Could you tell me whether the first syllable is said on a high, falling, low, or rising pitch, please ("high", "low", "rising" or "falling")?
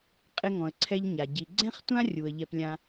high